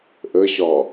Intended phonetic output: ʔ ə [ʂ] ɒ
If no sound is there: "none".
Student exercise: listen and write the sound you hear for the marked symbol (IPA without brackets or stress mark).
ɕ